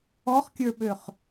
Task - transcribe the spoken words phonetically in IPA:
ɔχkʲə˞ɓøχ

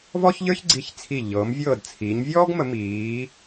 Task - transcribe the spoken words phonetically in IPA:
vɔ˥çʎə˞˥çɡ͡ǀi˧˩çt͡sʰi˧˩ ʎɤː˩˧mvʲɤː˧˩d t͡sʰiː˩˧ɲvʲɔː˥ɡmə˩˧ miː˩˧

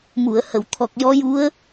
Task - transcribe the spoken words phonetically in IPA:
mu˨˩˨ə̯hə˨˩˨w t̪ʰɔ˨˩k̚jɔ˧˥ju˧˥ə̯

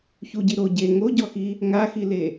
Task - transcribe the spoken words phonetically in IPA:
çuɟi ɾo ɟe ŋoɟɔxi | ŋaxile

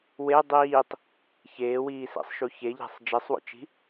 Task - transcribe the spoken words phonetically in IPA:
we dˤiːtˤ | çeːwiːsḛsˤʃu çeʎæ̤sˤ d͡ʒesˤwo̰t͡ʃi̤

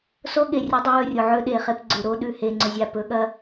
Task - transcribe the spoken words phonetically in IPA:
so˦ɠe˨rʲɐ˦ dˤɐ˦wɵ˦˨rʲo˨ ʕɵ˦ ɗe˨χe˦pɡ͡ǀʉ˨ ɾo˦ɗʉ˨ he˨ŋ͡ǀɵ˨zʲa˨ pɵ˨˦ɠɐ˦

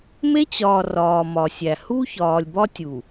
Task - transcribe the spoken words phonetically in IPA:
me˦t͡ɕɒː˨ rɒː˨mɒ˨ sʲæ˨ hu˦çɒː˨lʲbɒ˦tʲu˨

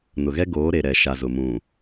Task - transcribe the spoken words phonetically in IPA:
nʊ˨ɣɛ˦ ɡoː˨˦ɾe˨ɾɛ˨ ʃa˨zʊ˨ mũ˨

